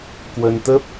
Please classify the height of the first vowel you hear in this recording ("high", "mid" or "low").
mid